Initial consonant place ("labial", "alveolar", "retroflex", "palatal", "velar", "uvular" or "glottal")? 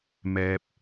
labial